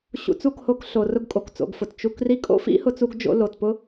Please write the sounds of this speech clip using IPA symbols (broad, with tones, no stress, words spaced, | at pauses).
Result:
ɕṵ˧t͡su˦˨kho˧k ɬo˨ rʊ˧ɡkʼo˨kt͡so̰˨ɡfʊ˨t t͡ʃu˧kri˦ kʼo̰˦fḭ˦hʊ˧t͡su˧ɡ d͡ʒo̰˧lo˨tpʊ˦